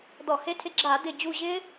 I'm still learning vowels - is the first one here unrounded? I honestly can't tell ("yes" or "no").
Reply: no